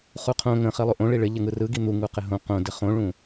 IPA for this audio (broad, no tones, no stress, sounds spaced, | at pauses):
χ u qʰ õ ŋ ə̃ χ i lˠ u ʔ õ ɭ i ɭ ɪ ʎ ɪ ŋ ɯ r ɯ ɡ i n̪ u ŋ u q ɪ ɦ õ q õ d ɪ χ õ ɭ ũ